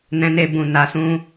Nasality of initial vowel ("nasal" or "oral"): nasal